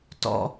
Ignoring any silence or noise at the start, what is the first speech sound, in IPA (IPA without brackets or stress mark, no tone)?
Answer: t